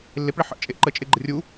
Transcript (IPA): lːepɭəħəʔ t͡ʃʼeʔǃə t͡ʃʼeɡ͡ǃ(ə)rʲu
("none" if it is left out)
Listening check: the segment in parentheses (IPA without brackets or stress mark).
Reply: ə